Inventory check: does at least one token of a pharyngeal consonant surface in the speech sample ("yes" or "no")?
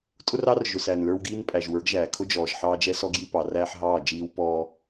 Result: yes